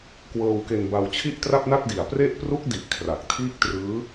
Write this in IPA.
kwɤː˧wke˧nba˧w t͡ɕʰi˥˩ʔtra˥˩p̚na˥˩t̚di˨˩a̯ pre˥˩ʔ pru˦˥k̚di˨˩ʔ kʰra˨˩k̚tʰiː˥˩k̚trɯː˦˥

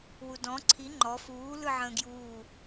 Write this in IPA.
wudɔ̃ ǀʰi ŋ͡ǃɔ fuː lɯʕə̃ːɡjuː

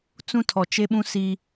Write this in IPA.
t͡sũ˦tʰɔ˨t͡ʃe˦ɓũ˦ si˦

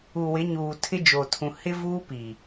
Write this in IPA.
u˨wɪ˨˦ɲuː˨ tʰɪ˦d͡ʒo˨tʰũ˨ hɪ˦ vuː˦pi˨

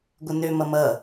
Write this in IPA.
ɡʷənø mʌmʌ

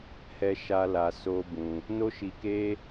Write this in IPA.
hɛ˧ʃa˧ la˧so˦bũ˧ | no˦ʃi˧ke˦

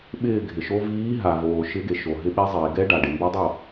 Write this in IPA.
ɓɪː˥˩ɡʱɪ˩ʃo˦˥ viː˨˥ɦa˩voː˩ ʃɪ˨˥ɡe˩ʃo˩ ɦɪ˨˥ɓɛ˨˥zˤiː˩ɡɛ˦˥ ɖa˩ɖɪ˩ mbɛ˦˥ dˤo˥˩

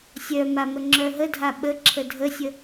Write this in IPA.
sʲœma məŋ͡ǁœɦədʱa ɓə ǁʰədʱəsʲə

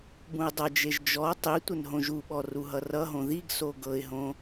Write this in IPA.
bũɪ̯dˤʌd͡ʒeʒ d͡ʒɔ tˤi tʷənɦõʒuɓɔ ruɦʌrʌɦõ ðiɡso ɡɤɪ̯ɦõ

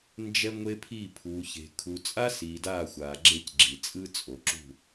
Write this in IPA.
nd͡ʒɛ˦ŋʷe˦pʰi˦˨ pʰuː˨çe̤˨ kʰu˨t͡sʼa˦siː˨ daː˦˨xʷaː˨ɡ͡ǁe˦cɡ͡ǁi˨ t͡sʼɯ˦t͡sʼo˨ǁṳ˦˨

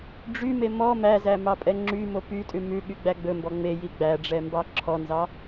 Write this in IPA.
ɖ͡ʐyme mɔ mæzæ mɑpʼɛŋ͡ǁymo pytʼʉ mʉ ɠyɡ͡bæɡ͡bɵmbɔ ŋ͡me jiɡ͡bæɖ͡ʐɛ mbɑǁʰɔnzɑ

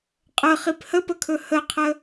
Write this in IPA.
qʼə χiphəpəkʰɵ həqʰə

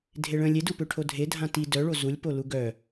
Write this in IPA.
dʱeɭə̃ lʲedupøʈʰo dʱedʱã ti dœɭo zulʲpolu ɡœ

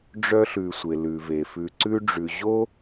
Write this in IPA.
ɖ͡ʐœ˧ɬʉ˩ sʷe˩lʉ˩ve˩ fʉ˩ǀʉ˧ɖ͡ʐʉ˩ ʑo˥

